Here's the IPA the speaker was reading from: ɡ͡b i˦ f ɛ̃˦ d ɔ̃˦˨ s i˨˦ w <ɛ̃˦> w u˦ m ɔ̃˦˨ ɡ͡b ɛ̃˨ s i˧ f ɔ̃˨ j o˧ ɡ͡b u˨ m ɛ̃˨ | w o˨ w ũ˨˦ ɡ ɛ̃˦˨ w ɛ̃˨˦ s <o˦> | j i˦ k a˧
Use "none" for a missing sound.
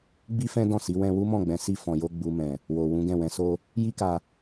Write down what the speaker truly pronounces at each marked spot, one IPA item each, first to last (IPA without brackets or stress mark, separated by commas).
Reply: ɛ̃˧, o˦